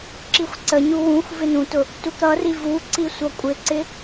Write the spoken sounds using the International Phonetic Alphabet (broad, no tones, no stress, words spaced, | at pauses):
ǁixʷǀəɲu wũxʷ vɪnũtʊ | tukɾʌri vuǀi sʷʌkʷʼɪǀɪ